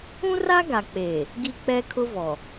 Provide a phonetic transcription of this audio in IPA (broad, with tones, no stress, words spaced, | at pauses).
ũ˦ra˦ɡa˨k͡peː˨ | ɡi˦k͡pɛ˦kʰʊ˦vɔ˨